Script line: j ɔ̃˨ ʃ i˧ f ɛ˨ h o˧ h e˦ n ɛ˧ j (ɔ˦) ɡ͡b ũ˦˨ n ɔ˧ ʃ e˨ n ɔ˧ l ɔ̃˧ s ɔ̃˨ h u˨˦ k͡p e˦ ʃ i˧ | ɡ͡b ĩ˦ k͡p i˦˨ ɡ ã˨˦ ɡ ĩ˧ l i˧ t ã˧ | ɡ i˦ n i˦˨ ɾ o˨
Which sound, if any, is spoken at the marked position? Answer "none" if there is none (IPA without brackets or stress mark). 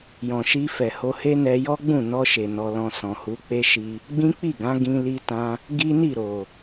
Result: ɔ˦